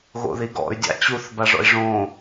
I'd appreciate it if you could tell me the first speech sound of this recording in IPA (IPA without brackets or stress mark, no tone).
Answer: ɣ